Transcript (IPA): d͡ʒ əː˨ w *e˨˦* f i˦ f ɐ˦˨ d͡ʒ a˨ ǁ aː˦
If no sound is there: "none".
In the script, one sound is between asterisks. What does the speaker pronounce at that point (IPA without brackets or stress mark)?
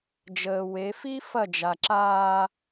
e˨˦